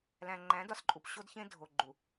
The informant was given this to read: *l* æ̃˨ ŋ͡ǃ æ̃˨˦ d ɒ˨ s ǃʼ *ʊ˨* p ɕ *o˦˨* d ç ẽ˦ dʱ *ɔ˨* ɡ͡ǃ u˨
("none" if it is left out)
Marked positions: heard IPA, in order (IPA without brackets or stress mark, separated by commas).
l, u˨, o˦, o˨